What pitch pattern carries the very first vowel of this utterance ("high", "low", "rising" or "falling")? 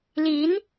rising